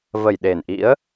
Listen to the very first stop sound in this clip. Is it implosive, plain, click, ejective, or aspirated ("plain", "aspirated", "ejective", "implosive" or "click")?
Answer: implosive